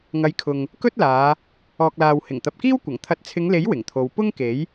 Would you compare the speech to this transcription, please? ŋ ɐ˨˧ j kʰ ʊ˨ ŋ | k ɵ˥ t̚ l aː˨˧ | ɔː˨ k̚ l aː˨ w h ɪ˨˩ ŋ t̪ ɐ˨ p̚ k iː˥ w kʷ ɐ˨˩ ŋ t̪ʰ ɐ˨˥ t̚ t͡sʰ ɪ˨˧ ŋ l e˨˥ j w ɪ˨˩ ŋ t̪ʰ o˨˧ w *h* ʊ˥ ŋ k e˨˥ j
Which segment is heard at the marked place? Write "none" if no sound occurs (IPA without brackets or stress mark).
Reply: p